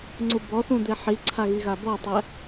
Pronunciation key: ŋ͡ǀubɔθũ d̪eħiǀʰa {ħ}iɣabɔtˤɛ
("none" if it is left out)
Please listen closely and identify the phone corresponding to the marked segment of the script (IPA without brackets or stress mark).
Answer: ɣ